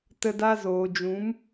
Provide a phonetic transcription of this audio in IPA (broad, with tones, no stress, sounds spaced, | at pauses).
t ə˧ d a˧ z oː˨ d͡ʒ ũ˨˦ m